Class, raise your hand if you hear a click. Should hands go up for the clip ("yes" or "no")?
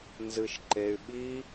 yes